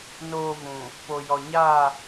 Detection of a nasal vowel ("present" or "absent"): present